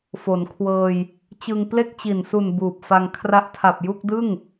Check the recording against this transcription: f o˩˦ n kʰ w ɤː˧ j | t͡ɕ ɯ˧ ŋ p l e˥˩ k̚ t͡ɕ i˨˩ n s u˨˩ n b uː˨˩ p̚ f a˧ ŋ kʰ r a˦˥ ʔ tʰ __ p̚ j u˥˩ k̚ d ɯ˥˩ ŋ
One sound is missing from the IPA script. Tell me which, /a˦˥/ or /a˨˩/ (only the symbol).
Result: a˨˩